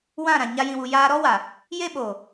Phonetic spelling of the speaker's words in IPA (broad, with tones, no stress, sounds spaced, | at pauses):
w ã˦˨ ɾ ã˨ ɲ a˦ j ĩ˧ w u˧ j aː˧ ɾ ɔ˦ w a˨ | j e˦ ɓ oː˨